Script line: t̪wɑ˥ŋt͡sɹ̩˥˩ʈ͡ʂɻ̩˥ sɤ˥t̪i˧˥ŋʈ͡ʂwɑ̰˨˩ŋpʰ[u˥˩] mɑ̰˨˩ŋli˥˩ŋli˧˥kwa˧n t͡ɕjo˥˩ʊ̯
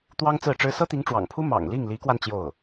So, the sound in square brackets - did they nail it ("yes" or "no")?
no